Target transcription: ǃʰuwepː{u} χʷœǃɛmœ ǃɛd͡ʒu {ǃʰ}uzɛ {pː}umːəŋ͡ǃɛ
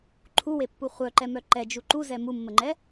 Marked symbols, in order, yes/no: yes, no, no

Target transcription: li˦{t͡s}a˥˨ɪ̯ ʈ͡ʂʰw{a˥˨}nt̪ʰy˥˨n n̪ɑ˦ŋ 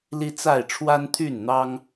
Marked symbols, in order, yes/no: yes, no

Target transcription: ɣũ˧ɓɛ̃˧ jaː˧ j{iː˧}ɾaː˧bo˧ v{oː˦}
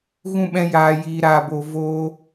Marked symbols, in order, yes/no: yes, yes

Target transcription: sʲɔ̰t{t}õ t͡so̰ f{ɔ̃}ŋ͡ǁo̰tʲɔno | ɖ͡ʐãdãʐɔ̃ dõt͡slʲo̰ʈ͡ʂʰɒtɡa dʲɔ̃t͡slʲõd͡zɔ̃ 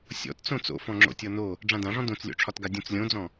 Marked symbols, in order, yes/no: no, yes

